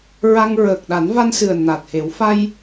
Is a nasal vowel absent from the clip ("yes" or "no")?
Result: yes